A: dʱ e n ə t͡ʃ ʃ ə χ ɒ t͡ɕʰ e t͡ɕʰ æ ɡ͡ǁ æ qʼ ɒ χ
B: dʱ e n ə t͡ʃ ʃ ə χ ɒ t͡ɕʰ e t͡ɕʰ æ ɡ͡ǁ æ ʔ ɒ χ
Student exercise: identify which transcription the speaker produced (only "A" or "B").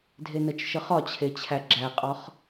A